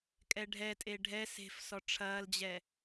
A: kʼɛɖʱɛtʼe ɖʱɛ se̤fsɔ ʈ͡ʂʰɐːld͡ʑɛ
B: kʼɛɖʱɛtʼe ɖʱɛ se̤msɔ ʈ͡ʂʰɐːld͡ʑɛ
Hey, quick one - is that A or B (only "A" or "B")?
A